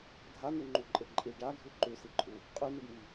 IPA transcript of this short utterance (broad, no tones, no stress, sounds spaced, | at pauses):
dʱ a n̪ ʉ ŋ͡ǃ u ǃʼ e ǃʼ i ɖ a ɡʱ ʉ ǃ ʉ s i ǃʼ u | qʼ ʉ n e ɖ m i